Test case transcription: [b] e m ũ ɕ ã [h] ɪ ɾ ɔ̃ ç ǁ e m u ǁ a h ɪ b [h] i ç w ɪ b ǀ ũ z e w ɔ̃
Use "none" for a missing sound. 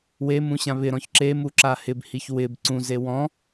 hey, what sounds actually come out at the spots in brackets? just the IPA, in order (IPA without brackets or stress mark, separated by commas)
w, β, h